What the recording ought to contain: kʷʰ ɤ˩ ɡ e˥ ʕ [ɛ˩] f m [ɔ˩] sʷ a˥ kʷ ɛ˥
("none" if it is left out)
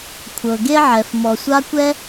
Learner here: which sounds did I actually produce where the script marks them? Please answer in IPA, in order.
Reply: ɛ˩, ɔ˩

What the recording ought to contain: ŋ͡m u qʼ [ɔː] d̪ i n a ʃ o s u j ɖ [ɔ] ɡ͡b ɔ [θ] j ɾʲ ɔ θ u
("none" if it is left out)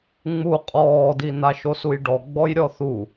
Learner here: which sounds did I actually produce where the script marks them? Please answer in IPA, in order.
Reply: ɔː, ɔ, none

